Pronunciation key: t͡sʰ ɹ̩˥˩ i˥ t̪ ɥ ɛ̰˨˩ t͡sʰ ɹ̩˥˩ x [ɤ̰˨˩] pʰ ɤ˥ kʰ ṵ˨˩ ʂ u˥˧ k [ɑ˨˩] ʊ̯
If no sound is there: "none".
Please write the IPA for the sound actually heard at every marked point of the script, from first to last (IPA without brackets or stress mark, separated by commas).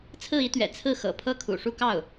ɤ̰˨˩, ɑ˥˩